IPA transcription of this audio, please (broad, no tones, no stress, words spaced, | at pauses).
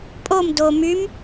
pʼom do mym